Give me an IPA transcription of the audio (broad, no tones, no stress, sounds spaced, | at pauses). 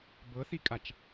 b ɤ θ i kʼ a t͡ʃ